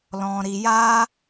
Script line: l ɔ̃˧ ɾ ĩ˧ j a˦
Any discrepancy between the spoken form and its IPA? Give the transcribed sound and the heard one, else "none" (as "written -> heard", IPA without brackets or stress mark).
ĩ˧ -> i˧